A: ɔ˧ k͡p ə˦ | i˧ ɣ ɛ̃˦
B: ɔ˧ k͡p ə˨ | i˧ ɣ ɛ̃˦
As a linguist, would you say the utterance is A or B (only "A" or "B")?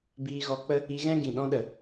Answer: A